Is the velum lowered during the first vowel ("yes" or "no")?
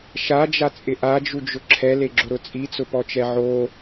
no